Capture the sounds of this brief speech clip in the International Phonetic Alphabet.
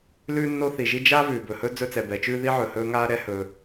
l ʉː˦ nː o˦ θ i˩ ʒ i˦ d͡ʒ a˥ v ʉː˩ b ɵ˩ h ɵ˥ d͡z ɵ˦ t͡s ɛ˩ b ɛ˩ t͡ʃ ʉː˥ ð i˥ ʕ ɵ˩ h ɵː˦ ŋ aː˥ ɾ ɛ˥ h ɵː˨

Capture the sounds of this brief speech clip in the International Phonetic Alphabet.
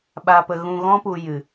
ɓ aː˧ p ə˧ ɣ ũ˧ ɣ ɔ̃˦ p u˧ j ɨ˨

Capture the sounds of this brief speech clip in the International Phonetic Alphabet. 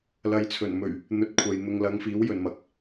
l ɐ˨ j t͡sʰ ɵ˨˩ n m ɵ˨˩ ɥ | n̪ ɵ˨ t̚ kʷʰ ɐ˨ j n̪ ʊ˨ ŋ l ɐ˨˧ ŋ f iː˨˥ w j ɵ˨ n m ɐ˨ k̚

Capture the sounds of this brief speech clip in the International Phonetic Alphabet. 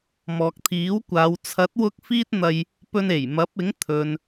m ɔː˨ k̚ t̪ʰ iː˨˥ w kʷ aː˨˧ w t͡sʰ ɐ˨˥ t̚ w ʊ˧ k̚ f iː˥ t̚ n̪ ɐ˧ j | p ɵ˧ n e˨˩ j m ɐ˨˥ p̚ ɪ˨˥ ŋ t̪ʰ ɵ˨ n

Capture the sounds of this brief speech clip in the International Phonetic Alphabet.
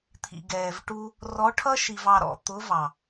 t̪ʰ ḭ˨ ɡ ɛː˨ v ʈ u˧ | r ɔ˨˦ ʈʰ ʌ˦ ʃ i˨ v ɑ˧ ɾ ɔ̰˨˦ t̪ ʊ˨˦ v ɑ˨

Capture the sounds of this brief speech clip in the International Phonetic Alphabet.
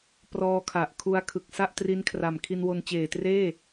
p r ɔː˧ kʰ a˨˩ ʔ kʰ u˧ a̯ kʰ ɯ˨˩ k̚ s a˥˩ ʔ t r i˦˥ n kʰ r a˨˩ m kʰ i˧ n w o˧ n t͡ɕ eː˨˩ t r eː˥˩

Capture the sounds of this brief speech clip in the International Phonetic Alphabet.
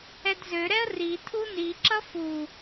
ɛ d z ø ɾ ɛ ə̯ r i tʰ u n i ǁ ʌ f u

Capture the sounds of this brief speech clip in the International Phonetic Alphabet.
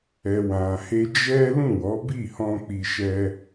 ɛ˨ w ã˨ h e˧ d͡ʒ ɛ˦ l ũ˦˨ w ɔ˨˦ b i˦˨ h ɔ̃˧ k͡p i˧ ʃ ɛ˦

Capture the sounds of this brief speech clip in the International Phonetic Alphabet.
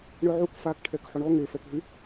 ɳ œ ʕ u k f a k ʈʰ ɛ k ħ o ɳ ɔ ŋ e f ɛ k ɦ y

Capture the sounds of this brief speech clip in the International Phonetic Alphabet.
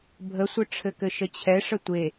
bʱ ə sʷ ɘ ʈ͡ʂʰ ɘ k ɘ ʃ ə t͡ɕʰ ɛ ʂ ə tʷ e

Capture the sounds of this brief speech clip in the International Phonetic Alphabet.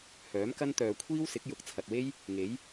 h œː˨˥ m k ɐ˥ n t̪ œː˨ kʷʰ iː˥ w s ɪ˨˥ k̚ j ʊ˨˥ k̚ t͡sʰ ɐ˨ t̚ w e˥ j | ŋ e˨˥ j

